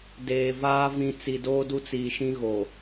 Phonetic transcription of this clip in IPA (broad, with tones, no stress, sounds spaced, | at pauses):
d eː˨ v aː˦ v ĩ˨ t͡s i˨ d oː˦ d u˦ t͡s iː˨ ʃ ĩ˦ ɣ o˨